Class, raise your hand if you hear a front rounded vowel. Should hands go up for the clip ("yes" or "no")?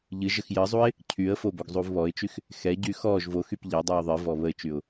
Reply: yes